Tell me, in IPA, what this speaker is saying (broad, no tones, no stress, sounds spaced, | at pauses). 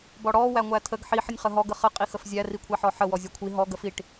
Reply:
b ɔ ɽ ɔ w æ ŋʷ æ tʰ ə ɡ ħ i ħ ə nʲ χ ə ɦ ɔ ɡ ə χ ə qʼ i x ə f zʲ æ r i kʷʰ æ ħ ɔ ħ ə w ɔ zʲ ɔ kʷʰ i ɦ ɔ ɡ ə f i ʈ